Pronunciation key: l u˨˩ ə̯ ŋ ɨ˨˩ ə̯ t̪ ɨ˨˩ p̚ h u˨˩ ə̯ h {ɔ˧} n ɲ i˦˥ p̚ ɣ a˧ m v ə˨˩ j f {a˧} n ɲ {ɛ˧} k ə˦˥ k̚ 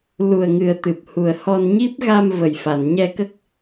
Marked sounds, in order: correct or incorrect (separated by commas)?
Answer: correct, incorrect, correct